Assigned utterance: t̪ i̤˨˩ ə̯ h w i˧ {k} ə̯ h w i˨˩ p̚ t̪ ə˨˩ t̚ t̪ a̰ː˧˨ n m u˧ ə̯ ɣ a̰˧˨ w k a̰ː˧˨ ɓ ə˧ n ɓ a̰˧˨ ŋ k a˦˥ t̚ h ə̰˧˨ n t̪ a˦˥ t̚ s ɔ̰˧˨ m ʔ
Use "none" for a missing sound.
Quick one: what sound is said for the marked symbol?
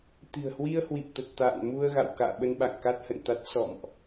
none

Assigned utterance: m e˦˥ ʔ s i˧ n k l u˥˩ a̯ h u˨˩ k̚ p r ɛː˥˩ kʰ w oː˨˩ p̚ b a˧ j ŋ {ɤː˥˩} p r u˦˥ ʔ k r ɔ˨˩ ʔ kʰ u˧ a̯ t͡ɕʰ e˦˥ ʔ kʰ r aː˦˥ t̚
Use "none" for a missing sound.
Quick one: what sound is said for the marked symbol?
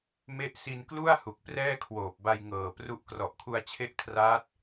ɤː˨˩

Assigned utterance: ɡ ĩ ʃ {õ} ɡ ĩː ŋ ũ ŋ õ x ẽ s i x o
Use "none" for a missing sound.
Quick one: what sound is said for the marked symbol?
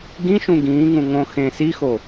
ũ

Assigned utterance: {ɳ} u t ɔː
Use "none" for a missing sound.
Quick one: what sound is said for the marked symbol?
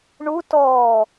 ɳ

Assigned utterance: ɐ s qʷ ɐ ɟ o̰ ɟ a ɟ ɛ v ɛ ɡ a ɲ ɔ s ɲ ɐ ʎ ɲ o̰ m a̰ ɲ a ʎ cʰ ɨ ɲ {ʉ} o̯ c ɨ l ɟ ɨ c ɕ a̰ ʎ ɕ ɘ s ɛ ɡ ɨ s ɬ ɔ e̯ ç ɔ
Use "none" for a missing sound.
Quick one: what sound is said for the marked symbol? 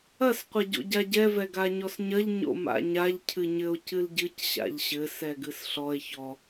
ɘ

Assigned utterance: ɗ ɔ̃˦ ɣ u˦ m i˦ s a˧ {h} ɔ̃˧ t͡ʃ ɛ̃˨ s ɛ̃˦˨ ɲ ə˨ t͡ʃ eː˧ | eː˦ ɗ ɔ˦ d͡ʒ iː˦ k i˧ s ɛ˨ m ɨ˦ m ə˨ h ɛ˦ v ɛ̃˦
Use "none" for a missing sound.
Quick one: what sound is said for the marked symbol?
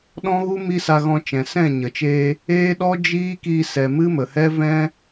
ɣ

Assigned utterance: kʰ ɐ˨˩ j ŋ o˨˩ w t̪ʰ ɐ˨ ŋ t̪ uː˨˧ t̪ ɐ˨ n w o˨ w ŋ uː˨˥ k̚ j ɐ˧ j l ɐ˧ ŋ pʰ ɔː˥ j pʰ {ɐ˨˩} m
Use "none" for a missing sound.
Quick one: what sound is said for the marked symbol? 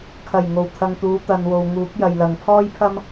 ɐ˥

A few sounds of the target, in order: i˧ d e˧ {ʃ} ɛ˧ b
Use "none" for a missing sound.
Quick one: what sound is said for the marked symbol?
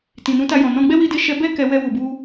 ʃ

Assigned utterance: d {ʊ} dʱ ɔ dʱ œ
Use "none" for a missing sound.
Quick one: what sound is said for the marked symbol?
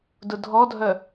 ʊ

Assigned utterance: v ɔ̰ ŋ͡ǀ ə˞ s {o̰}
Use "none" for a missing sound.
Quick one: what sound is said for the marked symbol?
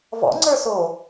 o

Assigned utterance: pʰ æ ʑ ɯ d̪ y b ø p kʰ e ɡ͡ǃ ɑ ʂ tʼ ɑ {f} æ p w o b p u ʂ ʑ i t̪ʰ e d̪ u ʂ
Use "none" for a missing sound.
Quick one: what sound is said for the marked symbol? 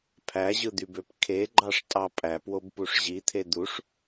pʼ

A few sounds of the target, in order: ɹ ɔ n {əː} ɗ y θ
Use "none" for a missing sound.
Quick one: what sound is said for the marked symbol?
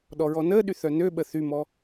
əː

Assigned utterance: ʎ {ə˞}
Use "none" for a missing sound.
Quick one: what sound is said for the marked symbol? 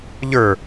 ə˞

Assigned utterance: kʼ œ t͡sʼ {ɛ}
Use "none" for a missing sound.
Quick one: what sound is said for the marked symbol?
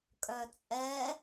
ɛ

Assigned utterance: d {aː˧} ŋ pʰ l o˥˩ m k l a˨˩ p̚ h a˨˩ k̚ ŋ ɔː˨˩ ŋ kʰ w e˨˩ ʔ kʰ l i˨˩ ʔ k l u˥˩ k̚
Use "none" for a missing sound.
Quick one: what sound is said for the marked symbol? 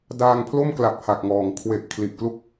aː˧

